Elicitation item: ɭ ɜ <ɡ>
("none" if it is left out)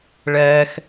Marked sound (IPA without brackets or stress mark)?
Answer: x